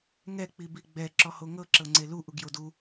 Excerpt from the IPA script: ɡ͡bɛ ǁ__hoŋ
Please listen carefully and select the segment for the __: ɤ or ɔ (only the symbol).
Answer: ɔ